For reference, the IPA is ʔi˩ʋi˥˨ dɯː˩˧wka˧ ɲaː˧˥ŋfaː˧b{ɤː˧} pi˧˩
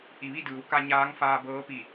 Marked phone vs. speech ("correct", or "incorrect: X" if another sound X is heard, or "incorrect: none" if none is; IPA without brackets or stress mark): incorrect: ɤː˧˥